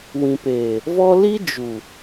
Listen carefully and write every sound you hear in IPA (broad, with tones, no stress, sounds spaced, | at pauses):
w ĩ˨ p eː˨ | v ɔ˦ l i˦ d͡ʒ u˨